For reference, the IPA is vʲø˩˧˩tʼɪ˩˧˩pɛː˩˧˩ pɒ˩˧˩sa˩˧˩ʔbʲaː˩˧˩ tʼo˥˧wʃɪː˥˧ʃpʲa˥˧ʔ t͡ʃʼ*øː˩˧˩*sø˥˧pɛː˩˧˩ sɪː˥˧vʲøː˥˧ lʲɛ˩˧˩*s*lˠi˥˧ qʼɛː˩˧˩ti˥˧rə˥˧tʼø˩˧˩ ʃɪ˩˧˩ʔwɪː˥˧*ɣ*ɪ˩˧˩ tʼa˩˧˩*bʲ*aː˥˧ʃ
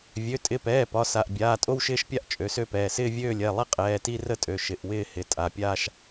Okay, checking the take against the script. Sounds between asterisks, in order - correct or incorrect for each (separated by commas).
incorrect, incorrect, incorrect, incorrect